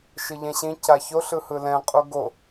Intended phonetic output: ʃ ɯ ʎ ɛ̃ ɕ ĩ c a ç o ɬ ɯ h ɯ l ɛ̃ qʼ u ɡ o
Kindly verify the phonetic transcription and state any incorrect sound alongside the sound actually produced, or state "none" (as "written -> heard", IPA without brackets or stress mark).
none